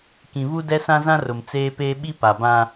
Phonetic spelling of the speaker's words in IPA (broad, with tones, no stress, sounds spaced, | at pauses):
k ĩ˨ β u˦ d ɛ˦ s ã˦ z ã˦ r ʊ˨ m t͡s eː˦ p eː˦ ɓ i˦ p a˨ b ã˦